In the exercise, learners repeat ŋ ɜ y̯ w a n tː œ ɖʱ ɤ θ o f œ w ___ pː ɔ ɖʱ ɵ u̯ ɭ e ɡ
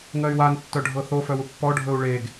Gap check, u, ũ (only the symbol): u